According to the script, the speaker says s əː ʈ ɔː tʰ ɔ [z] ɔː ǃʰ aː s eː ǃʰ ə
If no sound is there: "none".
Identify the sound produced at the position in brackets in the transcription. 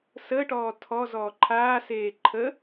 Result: z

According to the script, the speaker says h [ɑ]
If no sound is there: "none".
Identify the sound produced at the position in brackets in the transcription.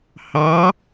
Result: ɑ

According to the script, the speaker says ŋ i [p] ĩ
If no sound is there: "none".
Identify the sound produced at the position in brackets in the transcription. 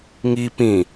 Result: p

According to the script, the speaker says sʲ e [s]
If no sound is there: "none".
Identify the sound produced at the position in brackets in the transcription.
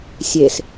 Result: s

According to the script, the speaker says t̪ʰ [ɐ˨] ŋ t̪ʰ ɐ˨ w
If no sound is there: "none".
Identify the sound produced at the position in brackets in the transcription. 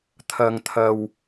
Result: ɐ˨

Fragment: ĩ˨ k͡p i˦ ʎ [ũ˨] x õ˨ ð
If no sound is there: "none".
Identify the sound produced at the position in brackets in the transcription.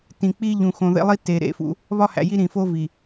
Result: ũ˨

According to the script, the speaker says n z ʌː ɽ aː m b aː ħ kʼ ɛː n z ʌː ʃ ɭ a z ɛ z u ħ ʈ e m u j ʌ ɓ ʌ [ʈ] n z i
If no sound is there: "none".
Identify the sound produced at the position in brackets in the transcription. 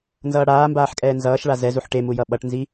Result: ʈ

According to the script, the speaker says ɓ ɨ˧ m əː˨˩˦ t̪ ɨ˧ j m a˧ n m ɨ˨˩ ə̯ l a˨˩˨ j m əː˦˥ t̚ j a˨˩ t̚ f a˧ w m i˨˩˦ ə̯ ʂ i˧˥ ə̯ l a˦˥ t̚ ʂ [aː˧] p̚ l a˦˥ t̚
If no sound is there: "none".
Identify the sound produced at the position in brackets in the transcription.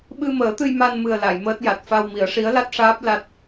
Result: aː˦˥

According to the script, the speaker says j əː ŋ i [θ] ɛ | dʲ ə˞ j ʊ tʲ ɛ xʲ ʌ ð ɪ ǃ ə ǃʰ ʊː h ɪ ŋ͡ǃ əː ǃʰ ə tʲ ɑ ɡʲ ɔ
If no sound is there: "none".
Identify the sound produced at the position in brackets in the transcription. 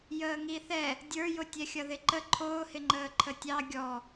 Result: θ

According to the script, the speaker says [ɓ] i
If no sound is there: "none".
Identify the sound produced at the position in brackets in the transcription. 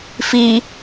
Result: f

